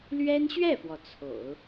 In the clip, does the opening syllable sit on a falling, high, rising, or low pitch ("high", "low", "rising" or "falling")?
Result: high